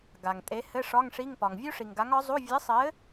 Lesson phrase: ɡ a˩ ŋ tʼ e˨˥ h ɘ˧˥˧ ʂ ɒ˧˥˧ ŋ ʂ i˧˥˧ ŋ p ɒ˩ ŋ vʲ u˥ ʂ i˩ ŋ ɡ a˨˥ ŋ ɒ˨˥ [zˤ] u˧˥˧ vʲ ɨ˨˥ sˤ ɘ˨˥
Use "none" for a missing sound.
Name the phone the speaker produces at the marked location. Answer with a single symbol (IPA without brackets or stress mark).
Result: zˤ